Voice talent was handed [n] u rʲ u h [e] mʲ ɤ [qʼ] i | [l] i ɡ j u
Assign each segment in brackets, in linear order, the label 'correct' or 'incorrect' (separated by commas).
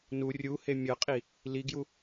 correct, correct, correct, correct